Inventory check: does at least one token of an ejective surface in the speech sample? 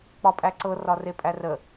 yes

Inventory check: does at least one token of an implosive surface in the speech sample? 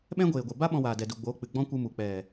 yes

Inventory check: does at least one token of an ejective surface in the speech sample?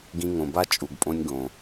yes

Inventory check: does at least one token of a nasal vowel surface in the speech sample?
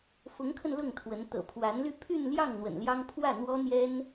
no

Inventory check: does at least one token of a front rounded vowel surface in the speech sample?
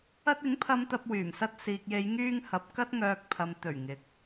yes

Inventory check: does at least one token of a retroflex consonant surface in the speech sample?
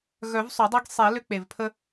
no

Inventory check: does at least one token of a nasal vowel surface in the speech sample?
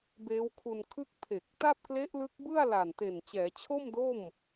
no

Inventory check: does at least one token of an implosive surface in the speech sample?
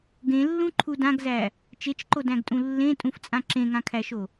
no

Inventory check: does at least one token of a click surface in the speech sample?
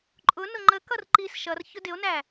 yes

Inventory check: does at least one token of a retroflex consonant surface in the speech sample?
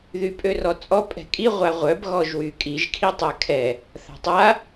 no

